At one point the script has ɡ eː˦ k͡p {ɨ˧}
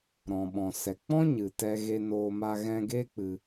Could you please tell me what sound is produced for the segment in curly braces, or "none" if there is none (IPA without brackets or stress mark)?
ɨ˧